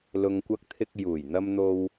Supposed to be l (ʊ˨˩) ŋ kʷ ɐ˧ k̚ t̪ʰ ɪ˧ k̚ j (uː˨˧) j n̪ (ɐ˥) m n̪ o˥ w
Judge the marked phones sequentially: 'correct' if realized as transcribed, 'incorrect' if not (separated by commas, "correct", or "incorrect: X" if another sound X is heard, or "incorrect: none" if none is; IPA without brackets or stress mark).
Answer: incorrect: ʊ˨, incorrect: uː˨˩, correct